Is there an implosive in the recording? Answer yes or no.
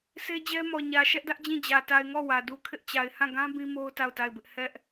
no